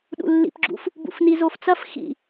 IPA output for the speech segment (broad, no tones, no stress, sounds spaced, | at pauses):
ɗ ṵ lː ḭ p ɡ͡ǁ ṵ f | b ṵ f n i z o f t͡s ɐ f x ḭ